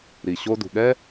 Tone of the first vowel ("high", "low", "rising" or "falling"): low